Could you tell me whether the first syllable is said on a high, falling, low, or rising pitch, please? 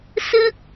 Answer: high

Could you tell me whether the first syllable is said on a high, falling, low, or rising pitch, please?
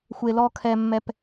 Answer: low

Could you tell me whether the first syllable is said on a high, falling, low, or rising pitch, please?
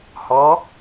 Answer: rising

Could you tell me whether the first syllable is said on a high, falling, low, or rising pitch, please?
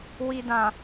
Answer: low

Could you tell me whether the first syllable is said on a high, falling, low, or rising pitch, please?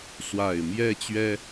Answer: low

